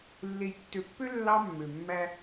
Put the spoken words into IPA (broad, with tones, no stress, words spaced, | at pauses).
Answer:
lːe˨jtːø˨pːø˦ lːɑ˦mːø˨mːæ˦